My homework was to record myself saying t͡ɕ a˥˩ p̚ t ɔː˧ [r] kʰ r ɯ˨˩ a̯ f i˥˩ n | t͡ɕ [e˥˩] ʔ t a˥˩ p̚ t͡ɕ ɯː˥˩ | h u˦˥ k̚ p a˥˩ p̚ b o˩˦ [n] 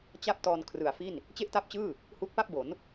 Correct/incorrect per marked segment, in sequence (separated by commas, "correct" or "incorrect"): incorrect, correct, correct